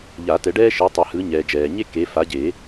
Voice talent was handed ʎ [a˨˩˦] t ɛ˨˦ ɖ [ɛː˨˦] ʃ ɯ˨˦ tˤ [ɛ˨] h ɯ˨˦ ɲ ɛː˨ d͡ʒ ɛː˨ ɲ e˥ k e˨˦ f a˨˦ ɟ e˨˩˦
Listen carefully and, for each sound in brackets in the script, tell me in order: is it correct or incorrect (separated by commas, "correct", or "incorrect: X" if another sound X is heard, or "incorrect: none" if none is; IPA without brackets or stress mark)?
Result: correct, incorrect: ɛː˥, correct